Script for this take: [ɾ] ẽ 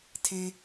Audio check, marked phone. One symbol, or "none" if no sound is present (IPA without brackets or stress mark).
tʰ